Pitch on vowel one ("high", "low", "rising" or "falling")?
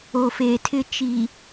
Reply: low